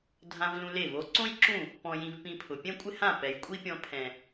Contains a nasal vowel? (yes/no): yes